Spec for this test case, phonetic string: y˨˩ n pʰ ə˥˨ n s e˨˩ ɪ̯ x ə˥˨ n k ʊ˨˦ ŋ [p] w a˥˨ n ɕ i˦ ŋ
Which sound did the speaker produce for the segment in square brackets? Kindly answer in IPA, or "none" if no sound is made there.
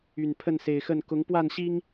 p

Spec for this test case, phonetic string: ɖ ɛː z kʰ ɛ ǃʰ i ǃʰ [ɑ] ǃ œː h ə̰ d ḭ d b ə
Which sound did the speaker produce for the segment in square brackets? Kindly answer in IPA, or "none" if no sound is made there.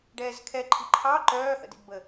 ɑ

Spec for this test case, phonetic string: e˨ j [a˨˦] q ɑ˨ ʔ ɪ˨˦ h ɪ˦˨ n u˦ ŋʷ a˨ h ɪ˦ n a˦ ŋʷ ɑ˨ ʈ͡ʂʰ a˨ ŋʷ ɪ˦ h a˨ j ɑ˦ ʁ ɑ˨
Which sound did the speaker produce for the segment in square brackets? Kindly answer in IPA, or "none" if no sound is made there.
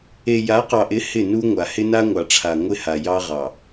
a˨˦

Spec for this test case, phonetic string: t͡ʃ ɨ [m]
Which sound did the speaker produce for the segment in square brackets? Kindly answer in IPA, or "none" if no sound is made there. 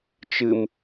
m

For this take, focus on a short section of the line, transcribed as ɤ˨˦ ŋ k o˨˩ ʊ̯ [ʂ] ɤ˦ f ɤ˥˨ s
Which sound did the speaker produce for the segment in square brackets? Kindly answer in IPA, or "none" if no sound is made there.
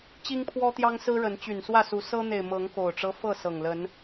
ʈ͡ʂ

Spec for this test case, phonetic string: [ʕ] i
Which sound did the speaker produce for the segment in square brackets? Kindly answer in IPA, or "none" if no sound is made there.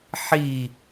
ħ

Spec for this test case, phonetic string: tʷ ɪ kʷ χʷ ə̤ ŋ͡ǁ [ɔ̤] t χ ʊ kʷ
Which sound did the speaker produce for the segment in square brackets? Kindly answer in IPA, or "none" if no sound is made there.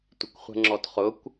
ɔ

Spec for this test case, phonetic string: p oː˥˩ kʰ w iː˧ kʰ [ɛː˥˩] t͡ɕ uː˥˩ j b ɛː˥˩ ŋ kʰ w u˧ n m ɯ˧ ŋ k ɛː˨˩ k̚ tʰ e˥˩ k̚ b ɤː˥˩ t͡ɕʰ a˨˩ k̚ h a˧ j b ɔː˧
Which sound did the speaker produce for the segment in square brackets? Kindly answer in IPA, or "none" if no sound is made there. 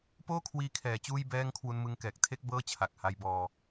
ɛː˩˦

